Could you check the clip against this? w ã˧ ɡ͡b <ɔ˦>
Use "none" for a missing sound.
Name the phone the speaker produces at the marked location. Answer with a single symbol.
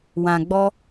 ɔ˦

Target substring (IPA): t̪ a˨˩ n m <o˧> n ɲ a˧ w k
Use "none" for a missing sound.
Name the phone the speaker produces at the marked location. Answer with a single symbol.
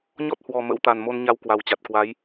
o˧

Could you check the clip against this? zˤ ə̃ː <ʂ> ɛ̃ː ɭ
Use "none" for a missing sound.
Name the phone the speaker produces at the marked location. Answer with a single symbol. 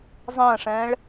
ʂ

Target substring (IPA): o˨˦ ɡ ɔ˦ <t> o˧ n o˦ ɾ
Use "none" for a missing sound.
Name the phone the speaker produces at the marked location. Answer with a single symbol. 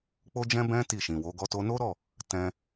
t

